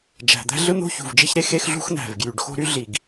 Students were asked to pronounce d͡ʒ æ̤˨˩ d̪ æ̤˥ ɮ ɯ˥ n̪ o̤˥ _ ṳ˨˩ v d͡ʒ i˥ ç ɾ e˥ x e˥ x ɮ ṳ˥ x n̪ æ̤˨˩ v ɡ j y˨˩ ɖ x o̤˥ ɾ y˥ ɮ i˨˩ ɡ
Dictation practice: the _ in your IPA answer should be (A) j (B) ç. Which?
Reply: B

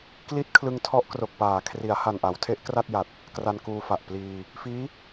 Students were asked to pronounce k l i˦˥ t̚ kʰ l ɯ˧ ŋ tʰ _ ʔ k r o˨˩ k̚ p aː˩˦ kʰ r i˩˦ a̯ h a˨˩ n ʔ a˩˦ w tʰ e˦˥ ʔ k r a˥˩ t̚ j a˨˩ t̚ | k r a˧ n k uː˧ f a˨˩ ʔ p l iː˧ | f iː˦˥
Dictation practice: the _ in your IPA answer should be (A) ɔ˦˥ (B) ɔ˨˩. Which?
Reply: A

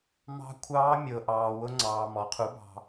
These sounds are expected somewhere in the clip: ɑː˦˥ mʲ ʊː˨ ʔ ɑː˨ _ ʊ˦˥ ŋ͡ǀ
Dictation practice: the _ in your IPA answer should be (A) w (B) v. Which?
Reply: A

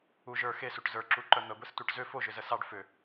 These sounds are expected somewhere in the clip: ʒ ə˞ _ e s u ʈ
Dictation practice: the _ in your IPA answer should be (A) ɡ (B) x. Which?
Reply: B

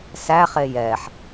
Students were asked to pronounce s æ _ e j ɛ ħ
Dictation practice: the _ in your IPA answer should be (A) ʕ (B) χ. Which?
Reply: B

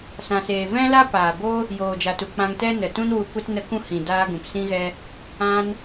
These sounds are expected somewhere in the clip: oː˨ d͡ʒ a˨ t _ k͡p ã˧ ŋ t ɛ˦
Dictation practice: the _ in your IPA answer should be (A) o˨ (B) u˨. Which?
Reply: B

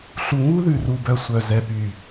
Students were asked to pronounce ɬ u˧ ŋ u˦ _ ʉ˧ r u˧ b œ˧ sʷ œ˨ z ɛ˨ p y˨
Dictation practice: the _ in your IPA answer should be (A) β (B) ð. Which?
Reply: B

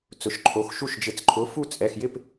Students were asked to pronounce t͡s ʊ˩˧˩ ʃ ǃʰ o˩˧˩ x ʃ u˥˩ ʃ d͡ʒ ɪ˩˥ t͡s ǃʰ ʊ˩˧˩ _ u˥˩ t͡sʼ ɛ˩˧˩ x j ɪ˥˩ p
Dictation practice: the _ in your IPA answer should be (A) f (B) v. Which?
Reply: A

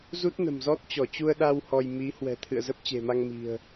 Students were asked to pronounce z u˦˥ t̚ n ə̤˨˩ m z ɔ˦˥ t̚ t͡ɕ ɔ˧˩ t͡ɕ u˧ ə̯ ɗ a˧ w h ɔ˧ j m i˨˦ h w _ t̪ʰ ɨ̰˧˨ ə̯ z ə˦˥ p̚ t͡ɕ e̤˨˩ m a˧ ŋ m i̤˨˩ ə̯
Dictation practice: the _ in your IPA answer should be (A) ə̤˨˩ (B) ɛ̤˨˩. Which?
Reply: B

